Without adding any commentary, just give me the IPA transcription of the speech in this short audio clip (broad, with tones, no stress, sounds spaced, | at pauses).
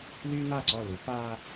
l yː˦ n a˦˨ ǀ ɔ˦˨ l u˨˦ p aː˦